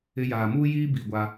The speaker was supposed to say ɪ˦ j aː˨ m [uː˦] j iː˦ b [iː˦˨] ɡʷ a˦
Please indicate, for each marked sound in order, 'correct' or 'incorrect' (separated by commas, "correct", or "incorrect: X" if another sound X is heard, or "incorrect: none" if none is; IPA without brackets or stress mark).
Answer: correct, correct